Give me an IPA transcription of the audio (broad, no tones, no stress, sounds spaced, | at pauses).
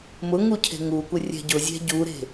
m ʊ ŋ u cʰ e̤ ŋ u kʷ ɪ rʲ ɛ̤ ɟ ʊ zʲ ɛ̤ ɟ u ɾ e̤